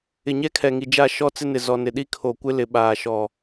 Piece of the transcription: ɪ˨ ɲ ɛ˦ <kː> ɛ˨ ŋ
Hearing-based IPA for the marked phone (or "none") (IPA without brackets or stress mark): kʰ